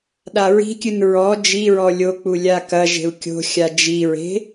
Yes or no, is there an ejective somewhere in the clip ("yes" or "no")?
no